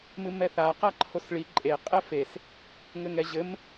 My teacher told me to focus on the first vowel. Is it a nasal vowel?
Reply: no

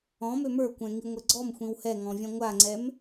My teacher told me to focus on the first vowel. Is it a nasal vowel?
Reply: yes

